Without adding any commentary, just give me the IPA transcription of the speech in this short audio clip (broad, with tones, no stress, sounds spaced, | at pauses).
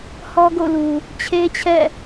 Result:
h ɔ˦ ɡ o̰˦˨ l u˨ | t͡ɕʰ e˦ t͡ɕʰ ɛ̰˦˨